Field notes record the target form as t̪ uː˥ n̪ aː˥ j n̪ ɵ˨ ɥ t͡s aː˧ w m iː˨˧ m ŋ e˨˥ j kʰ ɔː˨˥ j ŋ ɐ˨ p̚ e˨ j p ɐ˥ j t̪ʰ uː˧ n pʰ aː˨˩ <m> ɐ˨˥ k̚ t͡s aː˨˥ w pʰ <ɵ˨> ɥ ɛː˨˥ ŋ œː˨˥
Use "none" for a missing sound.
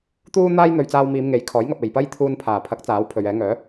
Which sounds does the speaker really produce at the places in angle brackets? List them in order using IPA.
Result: pʰ, ɵ˨

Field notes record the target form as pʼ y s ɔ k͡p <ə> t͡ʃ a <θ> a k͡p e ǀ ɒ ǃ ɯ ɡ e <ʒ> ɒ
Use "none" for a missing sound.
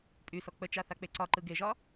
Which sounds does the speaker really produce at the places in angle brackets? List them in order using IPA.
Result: ə, θ, ʒ

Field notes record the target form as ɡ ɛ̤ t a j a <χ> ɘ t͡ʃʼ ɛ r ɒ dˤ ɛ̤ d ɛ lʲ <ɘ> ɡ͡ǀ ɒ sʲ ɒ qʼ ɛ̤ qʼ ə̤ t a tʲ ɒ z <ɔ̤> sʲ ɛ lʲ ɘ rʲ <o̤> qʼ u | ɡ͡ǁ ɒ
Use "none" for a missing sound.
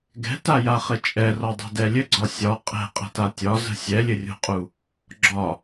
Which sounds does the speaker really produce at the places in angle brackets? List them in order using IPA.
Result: χ, ɘ, ə̤, o̤

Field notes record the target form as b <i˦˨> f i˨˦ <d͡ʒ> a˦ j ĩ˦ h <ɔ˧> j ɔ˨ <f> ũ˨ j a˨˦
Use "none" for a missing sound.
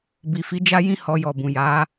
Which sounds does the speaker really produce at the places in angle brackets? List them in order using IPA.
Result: i˨, d͡ʒ, ɔ˧, b

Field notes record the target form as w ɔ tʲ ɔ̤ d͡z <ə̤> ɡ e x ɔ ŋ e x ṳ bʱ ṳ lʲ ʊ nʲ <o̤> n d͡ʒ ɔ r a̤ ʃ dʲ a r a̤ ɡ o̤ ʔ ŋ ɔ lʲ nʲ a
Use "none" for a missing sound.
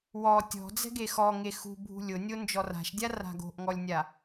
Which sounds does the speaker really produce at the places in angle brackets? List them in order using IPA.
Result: ɛ̤, o

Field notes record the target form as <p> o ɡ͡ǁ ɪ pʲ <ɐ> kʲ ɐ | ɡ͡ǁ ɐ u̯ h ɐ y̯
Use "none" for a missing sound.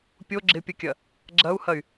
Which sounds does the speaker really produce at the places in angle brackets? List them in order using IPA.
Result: pʲ, ɐ

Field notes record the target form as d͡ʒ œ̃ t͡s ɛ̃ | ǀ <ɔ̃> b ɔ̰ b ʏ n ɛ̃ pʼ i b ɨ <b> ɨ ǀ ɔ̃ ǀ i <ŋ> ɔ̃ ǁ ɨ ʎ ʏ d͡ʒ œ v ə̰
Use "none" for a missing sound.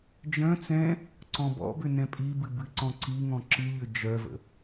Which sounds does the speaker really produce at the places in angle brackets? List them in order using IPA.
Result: ɔ̃, b, ŋ

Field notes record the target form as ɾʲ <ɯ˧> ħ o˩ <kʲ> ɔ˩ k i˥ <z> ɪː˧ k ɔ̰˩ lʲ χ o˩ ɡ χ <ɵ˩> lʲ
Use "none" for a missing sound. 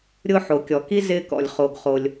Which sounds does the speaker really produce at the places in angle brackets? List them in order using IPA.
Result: ʊ˧, kʲ, z, o˩

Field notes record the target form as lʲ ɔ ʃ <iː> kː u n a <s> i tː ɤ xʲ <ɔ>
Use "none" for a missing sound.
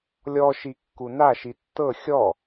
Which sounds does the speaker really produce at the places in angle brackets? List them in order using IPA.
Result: i, ʃ, ɔ

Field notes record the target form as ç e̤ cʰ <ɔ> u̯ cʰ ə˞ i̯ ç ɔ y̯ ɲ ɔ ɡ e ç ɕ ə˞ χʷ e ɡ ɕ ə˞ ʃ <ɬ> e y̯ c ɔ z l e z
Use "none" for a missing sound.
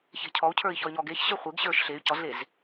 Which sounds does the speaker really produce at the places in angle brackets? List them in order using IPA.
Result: ɔ, ɬ

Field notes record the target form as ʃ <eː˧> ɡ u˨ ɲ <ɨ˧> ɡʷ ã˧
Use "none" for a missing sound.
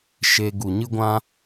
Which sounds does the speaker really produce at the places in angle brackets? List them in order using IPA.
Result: e˧, ɨ˧

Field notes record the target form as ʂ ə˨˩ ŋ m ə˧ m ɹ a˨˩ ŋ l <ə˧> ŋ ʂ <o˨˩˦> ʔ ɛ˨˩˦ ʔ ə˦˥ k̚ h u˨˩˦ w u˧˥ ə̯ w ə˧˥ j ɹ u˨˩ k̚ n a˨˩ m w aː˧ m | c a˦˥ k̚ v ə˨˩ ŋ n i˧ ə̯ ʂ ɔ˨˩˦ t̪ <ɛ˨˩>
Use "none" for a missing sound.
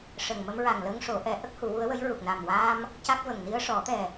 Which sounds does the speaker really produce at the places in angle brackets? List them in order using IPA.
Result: ə˧, o˨˩˦, ɛ˨˩

